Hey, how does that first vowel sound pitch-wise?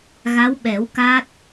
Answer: rising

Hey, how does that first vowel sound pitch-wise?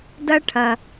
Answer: high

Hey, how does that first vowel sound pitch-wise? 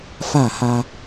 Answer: falling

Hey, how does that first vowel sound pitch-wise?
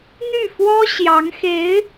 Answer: falling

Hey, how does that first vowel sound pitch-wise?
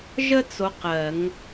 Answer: high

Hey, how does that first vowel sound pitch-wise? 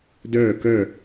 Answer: falling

